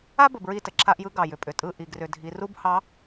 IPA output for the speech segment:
a˦ b ə˨ b ɹ i˦˨ t ə˨ ǁʰ a˦ ʔ j ɯ˦ ɡ ɑ˨ j ʏ˨ pʼ ʏ˨ tʼ ɯ˦˨ ʔ i˨ ɡ r ʏ˨ dʱ i˨˦ r u˦ b h ɑ˨˦

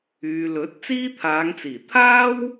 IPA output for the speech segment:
yː˨ l ɵ˨˥ t̚ t͡s iː˥ t̪ʰ aː˨˧ ŋ t͡s iː˨˩ t̪ʰ aː˥ w

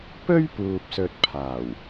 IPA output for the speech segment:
p ɵ˥ ɥ p uː˨ p̚ s ɵ˨ t̚ pʰ aː˨˩ w

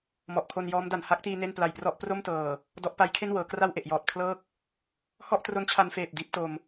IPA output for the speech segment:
m ɔ˨˩ ʔ kʰ o˧ n j ɔː˦˥ m d a˨˩ n h a˦˥ k̚ t iː˧ n e˥˩ n p l a˨˩ j p r ɔ˦˥ ʔ p r o˥˩ m t ɤː˨˩ | d ɔ˦˥ ʔ p a˦˥ j kʰ e˥˩ n w ɤː˩˦ k r a˥˩ w ʔ e˨˩ ʔ j ɔː˨˩ t̚ pʰ l ɤː˦˥ k̚ | h ɔ˥˩ ʔ t r o˦˥ n t͡ɕʰ a˧ n f eː˨˩ p̚ d iː˦˥ p̚ t o˧ m

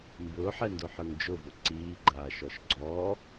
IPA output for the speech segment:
m b ʊː ħ ɛ n d ʊː ħ ə˞ ŋ d͡ʒ ʊ v ʊ ǀ iː ɡ͡ǃ aː ʃ ɔ ʃ ɡ͡ǀ ɔː

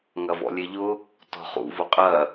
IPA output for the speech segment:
ŋ ɐ v ɔ̰ lʲ e ʎ ʊ | t ɔ̤ χ ṵ v ʊ qʼ ɐ

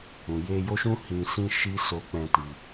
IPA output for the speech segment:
ũ˨ j e˧ j o˦ ʃ ũ˦ h ĩ˧ s ĩ˦ ʃ i˦ s o˧ k͡p ɛ̃˧ t i˧

